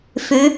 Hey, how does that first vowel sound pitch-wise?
rising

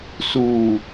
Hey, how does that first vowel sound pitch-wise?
low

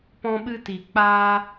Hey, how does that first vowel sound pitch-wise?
high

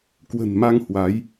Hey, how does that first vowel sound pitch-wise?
low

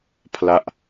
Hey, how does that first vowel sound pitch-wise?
falling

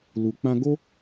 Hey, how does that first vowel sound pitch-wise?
low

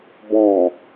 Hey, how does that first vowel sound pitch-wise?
low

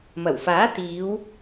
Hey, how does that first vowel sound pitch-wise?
low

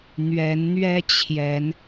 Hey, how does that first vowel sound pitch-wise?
rising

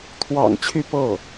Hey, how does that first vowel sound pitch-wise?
low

